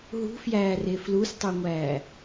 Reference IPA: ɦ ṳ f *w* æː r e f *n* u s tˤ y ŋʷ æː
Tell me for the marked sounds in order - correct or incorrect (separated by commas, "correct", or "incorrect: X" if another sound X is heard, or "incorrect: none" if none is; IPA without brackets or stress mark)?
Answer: incorrect: j, incorrect: l